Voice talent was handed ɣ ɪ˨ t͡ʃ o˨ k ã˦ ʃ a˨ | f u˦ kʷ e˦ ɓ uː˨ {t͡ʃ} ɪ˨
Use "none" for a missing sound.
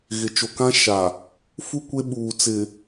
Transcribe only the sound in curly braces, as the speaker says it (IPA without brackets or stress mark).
t͡s